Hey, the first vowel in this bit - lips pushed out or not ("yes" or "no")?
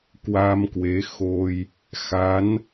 no